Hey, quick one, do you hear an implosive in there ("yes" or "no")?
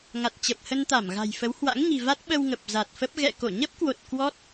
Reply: yes